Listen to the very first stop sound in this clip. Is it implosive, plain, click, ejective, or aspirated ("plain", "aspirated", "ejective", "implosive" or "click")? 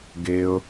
plain